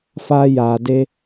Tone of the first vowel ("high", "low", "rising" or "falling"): high